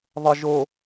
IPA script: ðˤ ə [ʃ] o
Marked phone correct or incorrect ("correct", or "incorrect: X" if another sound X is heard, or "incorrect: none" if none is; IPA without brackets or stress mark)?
incorrect: ʒ